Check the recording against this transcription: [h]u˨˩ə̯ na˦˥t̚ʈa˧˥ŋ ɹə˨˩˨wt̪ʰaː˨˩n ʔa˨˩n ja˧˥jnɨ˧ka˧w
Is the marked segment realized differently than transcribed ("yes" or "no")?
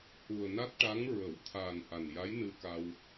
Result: no